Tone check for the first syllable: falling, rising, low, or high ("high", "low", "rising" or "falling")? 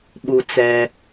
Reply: low